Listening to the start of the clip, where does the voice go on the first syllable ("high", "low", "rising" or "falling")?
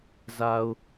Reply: low